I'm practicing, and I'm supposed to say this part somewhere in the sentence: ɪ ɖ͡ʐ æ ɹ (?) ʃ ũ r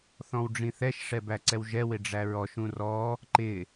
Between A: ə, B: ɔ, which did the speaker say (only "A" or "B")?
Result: B